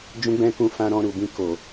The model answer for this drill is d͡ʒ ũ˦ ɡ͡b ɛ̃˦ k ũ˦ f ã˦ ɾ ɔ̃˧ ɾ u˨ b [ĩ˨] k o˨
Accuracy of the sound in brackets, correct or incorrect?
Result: incorrect